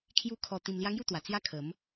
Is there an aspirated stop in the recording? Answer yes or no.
yes